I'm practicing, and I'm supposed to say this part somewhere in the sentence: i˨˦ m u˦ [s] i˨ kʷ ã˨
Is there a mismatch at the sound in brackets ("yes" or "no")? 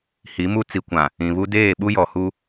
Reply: yes